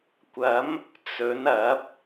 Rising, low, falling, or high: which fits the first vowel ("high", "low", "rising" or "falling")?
rising